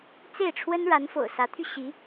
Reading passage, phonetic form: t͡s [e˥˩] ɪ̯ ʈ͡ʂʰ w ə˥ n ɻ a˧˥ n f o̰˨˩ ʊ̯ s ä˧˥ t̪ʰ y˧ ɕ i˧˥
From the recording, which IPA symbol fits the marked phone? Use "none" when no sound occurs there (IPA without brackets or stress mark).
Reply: e˥˩